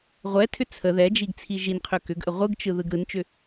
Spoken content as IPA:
ʁʷ ɛ tʰ ʏ t͡sʰ ə ð ɛ d͡ʒ i ɡ t͡sʰ i ʒ i n qʰ ʏ k ʏ ɡ ʔ ə ʁʷ ɯ ɡ t͡ʃ ɯ ð ɯ ɡ ɾ ɯ n t͡ʃ ʏ

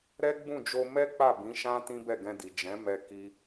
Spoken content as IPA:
ɾ ɛ˦ ɡ͡b ũ˦˨ d͡ʒ o˧ m ɛ˦ k͡p a˦˨ b ĩ˨˦ ʃ ã˦ t ĩ˦ b ɛ˦˨ ɡ ɛ̃˧ d i˨ d͡ʒ ɛ̃˨˦ m ɛ˧ k i˦

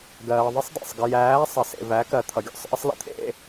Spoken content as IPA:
ɡ ɜː˨ ðˤ ɪ˦ sˤ d æ̰˨ sˤ ɡ ɪ˨ j æː˨˦ sˤ ə˨ s ḛ˨ v æ˨˦ k ɜ˨ t̪ʰ ʌ˨ ɡʲ ɔ̰˦˨ sˤ ʔ ə˦ sˤ l ə̰˦ t̪ʰ ḛ˦˨

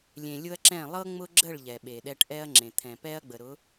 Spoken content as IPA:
lʲ ẽ˨ lʲ ʊ˦ ɐ̯ ǁ ɛ̃˦˨ lˠ ɤ˦ ŋ͡m ʊ˦ ɡ͡ǁ ə˦˨ ɭ ʎ ɛ˨ ɓ e˨ ɗ ɛ˦ ʈ ʔ ɛ˦ ɐ̯ ŋ͡ǁ ẽ˨ t̪ʰ ɛ̃˨ p ɛ˦ ɐ̯ ɡ͡b ə˨ ɾ ʊ˨˦

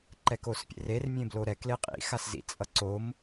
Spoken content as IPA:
ǃ ɛ k o s pʲ ḛ r e r mʲ ẽ b l o ɾ ɛ k l e qʼ ḭ x a s z ḭ t͡sʼ ʌ ǀ o m

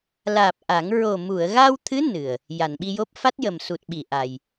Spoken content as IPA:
l aː˨˩ p̚ ʔ a˨˩˦ ŋ ɹ o˨˩ m u˨˩˨ ə̯ ɣ a˧ w t̪ʰ ɨ˧˥ n ɨ˨˩ ə̯ | j a˨˩˨ n ɓ i˧ j o˦˥ p̚ f a˦˥ t̚ j ə˨˩ m s u˨˩ t̚ ɓ i˨˩˨ ʔ a˧ j

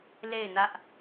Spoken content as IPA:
l e˦˨ ɪ̯ n ä˦ ʔ

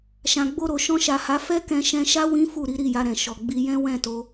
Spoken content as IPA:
ʃ ã˨ ɡ͡b o˧ ɾ o˨ ʃ ɔ̃˧ ʃ a˨ h a˨˦ f ɛ˦ k ɛ̃˧ ʃ ɛ̃˧ ʃ a˦ w ĩ˦ f u˦˨ ɾ i˨˦ ɾ i˦˨ j a˧ ɾ ɛ̃˨ ʃ ɔ˨ ɡ͡b i˧ j ɛ̃˦ w ɛ̃˦˨ t o˧

